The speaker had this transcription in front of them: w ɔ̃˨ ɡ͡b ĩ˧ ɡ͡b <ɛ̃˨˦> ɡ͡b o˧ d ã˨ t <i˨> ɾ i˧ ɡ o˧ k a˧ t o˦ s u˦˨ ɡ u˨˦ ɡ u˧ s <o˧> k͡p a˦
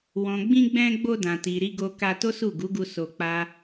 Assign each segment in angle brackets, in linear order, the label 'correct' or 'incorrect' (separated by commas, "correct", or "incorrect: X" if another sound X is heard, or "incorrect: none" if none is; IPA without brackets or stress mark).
incorrect: ɛ̃˧, correct, correct